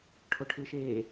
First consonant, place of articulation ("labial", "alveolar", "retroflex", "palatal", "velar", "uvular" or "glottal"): retroflex